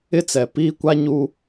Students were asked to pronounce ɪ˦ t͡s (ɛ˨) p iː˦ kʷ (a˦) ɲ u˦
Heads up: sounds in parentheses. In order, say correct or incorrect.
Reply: correct, correct

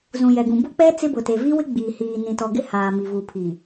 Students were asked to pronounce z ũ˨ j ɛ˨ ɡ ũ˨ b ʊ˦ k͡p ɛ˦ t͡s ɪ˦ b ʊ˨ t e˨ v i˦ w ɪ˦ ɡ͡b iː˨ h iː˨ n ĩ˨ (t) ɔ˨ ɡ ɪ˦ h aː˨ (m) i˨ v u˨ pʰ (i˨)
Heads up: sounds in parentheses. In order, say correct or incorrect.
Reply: correct, correct, correct

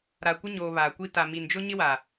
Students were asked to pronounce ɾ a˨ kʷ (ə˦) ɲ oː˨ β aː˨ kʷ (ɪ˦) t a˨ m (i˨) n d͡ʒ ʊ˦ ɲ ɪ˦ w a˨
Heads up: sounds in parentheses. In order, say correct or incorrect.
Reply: incorrect: ɪ˦, incorrect: i˦, correct

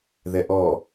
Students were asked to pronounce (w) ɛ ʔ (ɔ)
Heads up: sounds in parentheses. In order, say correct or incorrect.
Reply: incorrect: ð, correct

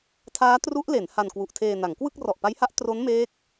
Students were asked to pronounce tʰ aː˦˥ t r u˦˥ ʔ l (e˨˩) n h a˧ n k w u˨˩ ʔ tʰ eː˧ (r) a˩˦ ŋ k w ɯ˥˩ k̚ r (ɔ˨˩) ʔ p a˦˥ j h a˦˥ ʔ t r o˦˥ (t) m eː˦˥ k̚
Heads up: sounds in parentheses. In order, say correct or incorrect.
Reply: incorrect: e˩˦, incorrect: n, correct, incorrect: n

